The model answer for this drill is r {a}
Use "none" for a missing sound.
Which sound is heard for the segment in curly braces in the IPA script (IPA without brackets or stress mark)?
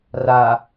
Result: a